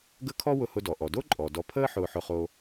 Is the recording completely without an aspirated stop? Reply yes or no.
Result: no